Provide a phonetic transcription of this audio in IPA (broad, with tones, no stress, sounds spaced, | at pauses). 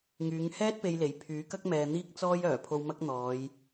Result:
ŋ yː˨˧ ŋ h ɛː˥ t̚ p e˧ j l e˨˥ j pʰ yː˨˥ k ɐ˥ k̚ m ɛː˨ n̪ iː˥ k̚ t͡s ɔː˥ j œː˨˩ pʰ o˧ w m ɐ˥ k̚ n̪ ɔː˨˧ j